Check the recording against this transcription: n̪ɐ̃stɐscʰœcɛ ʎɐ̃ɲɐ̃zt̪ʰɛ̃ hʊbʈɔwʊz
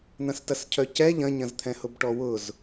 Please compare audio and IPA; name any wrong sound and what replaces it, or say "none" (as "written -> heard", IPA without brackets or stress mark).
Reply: none